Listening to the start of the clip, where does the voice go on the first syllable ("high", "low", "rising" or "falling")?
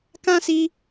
high